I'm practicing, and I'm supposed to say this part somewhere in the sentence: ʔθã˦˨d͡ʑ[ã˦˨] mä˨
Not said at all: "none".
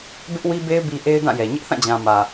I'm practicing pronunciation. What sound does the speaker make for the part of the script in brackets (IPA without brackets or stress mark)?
ã˨